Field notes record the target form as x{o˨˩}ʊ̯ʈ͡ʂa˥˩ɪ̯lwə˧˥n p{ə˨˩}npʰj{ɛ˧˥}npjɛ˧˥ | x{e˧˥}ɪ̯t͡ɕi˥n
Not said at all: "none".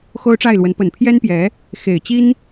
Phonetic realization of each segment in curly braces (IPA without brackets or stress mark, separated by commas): o˥, ə˨˩, ɛ˥, e˨˩